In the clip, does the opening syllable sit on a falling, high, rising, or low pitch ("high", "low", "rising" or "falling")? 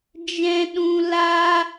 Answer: high